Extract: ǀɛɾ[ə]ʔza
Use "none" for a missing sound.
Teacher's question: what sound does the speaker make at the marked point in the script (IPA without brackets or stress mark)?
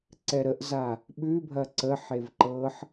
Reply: ə